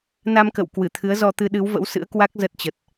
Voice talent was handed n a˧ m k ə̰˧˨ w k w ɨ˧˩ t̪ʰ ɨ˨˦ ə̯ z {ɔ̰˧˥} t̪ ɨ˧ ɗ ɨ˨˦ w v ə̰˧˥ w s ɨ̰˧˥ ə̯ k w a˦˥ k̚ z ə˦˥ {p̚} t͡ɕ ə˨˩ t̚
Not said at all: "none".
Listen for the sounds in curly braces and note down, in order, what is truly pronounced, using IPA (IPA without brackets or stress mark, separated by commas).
ɔ˧, t̚